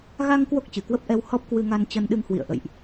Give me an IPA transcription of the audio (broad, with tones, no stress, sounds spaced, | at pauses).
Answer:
ɣ a˧ ŋ k w o˦˥ k̚ t͡ɕ ɨ˧˩ k w ə˦˥ p̚ ʔ ɛ˧ w h ɔ˦˥ p̚ k w ɨ˧ ŋ a˧ n t͡ɕ ə˧ n ɗ ɨ˧ ŋ h w ḭ˧˨ ə̯ ʔ ə̰˧˨ j ʔ